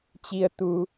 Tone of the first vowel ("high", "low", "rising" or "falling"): low